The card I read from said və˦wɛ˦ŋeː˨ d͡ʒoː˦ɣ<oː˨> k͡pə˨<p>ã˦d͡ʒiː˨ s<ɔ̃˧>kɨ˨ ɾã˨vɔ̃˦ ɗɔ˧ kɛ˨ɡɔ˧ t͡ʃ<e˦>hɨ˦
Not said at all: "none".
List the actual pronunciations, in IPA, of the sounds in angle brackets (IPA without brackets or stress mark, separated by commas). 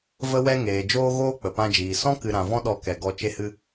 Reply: oː˦, p, ɔ̃˦, e˦